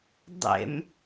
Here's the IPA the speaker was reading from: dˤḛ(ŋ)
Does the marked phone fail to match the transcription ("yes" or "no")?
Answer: yes